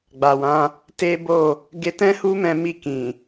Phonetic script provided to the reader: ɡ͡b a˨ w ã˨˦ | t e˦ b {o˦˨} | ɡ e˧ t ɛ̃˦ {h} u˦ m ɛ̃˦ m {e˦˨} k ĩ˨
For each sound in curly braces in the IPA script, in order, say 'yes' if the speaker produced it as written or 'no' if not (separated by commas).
yes, yes, no